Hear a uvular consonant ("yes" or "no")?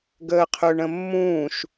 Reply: yes